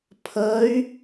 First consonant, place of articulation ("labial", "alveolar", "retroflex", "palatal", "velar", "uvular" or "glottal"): labial